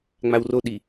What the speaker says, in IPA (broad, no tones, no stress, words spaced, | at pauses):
ŋ͡mawroɗi